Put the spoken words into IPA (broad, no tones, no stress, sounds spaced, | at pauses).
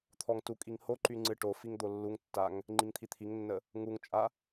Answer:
t̪ʰ ɔ ŋ t u kʼ i ŋ h o ǃ y ŋ͡ǀ ɨ ʈ o f i ŋ d̪ o lː u ŋ tː a ŋ | ŋ͡ǃ i ŋ t̪ʰ i t̪ʰ i ŋ nː ə | ŋ u ŋ t͡ʃʼ a